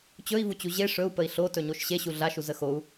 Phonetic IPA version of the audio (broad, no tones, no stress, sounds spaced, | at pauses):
t͡ɕ ɵ i̯ v u t͡ɕ u ʑ e ʂ ɵ u̯ p ə i̯ ɬ o t ɵ ɲ o ʃ ɕ e ɕ u ɮ a ʃ u z ə x o u̯